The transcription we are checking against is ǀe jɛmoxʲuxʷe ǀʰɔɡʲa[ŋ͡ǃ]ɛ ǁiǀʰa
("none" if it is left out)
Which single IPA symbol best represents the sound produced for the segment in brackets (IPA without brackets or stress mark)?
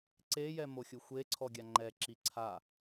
ŋ͡ǃ